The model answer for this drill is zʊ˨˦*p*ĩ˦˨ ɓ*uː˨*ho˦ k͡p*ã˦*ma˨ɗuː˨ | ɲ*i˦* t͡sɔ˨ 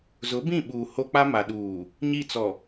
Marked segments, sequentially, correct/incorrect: incorrect: b, correct, incorrect: a˦, incorrect: i˦˨

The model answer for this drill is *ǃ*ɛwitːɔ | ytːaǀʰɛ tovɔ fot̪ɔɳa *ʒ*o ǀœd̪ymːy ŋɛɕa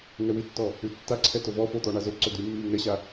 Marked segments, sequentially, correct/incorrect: incorrect: ŋ, incorrect: z

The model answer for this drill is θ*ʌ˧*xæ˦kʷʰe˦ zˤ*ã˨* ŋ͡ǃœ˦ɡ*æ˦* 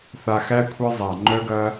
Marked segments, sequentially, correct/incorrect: incorrect: a˧, incorrect: a˨, incorrect: ɐ˦

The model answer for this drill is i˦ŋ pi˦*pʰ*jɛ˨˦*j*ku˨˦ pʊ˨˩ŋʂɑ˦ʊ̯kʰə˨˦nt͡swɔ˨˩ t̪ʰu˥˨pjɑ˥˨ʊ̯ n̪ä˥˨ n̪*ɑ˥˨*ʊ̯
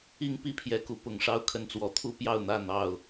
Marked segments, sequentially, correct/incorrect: correct, incorrect: none, correct

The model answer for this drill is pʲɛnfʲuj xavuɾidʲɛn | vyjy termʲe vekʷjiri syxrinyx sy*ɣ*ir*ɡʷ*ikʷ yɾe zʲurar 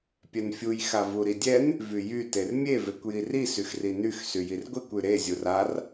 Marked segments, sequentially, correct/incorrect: incorrect: j, correct

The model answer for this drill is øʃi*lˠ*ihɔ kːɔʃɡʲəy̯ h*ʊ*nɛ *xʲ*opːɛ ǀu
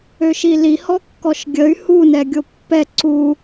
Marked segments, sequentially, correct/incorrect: incorrect: l, incorrect: u, incorrect: ɡʲ

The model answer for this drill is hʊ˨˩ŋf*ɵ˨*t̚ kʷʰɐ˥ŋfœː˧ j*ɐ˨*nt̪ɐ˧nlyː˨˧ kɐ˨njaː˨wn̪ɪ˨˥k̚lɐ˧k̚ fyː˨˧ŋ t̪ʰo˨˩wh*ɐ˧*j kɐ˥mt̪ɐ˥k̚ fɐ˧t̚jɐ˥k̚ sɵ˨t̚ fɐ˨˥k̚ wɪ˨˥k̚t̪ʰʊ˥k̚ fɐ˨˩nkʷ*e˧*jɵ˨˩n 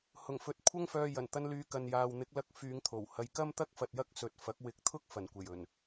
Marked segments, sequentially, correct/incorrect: correct, incorrect: ɐ˨˩, correct, incorrect: e˨˩

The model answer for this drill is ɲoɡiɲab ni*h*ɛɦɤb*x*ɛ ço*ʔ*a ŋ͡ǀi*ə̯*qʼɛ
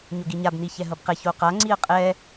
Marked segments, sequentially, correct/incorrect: incorrect: ç, incorrect: q, incorrect: q, correct

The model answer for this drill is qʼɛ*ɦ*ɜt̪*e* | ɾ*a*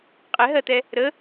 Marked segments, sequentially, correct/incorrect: correct, incorrect: ɛ, incorrect: ə

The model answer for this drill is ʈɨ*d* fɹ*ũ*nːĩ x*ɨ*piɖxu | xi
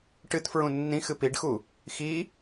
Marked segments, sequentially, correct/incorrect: incorrect: t, correct, correct

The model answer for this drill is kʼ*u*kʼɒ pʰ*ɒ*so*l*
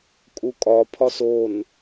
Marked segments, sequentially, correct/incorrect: correct, correct, incorrect: n

